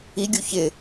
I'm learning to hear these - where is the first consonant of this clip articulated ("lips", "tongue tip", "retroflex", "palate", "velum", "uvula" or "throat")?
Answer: velum